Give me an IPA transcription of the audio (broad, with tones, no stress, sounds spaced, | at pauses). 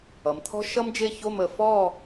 ʌ˩˧ m t̪ʰ ɔ̤˥ ʃ ʌ˥ m d͡ʒ e˥˧ ç o˥˧ m ə˧ f ɔ˥˧